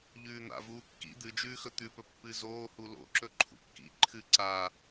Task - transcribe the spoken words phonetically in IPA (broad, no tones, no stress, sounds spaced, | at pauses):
ʎ ʉː n̪ a̰ v uː kː ḭ d̪ ɨ d͡ʒ ʉː x ɵ t̪ ʉ p ɵ pː ɨ z oː h u l o̰ ǁ ɵ ǃʰ ṵ kː ḭ ǃʰ ɨ ǀ a